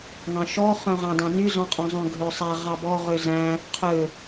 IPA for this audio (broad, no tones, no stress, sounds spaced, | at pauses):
ŋ ɑ̃ ʃ ɔ χ œ̃ ʁ ɑ̃ d ɑ̃ n y z ɔ̃ qʼ ɔ̃ zˤ œ̃ ɡʱ ø sˤ ɛ ʁ ɑ b ɔ ʁ ø z æ̃ | qʰ ø